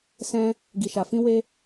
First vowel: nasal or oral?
nasal